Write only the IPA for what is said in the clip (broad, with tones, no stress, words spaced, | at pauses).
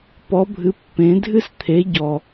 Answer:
pɔ˨˥bʱɨ˨˥ pːẽ˨˥ dʱɨ˥st̪ʰe˨˥ ɟɔ˨˩